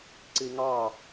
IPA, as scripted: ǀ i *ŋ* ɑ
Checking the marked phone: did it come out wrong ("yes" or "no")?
no